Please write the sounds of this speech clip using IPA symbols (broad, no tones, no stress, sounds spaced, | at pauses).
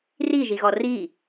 r i ʒ i ɣ ɔ r i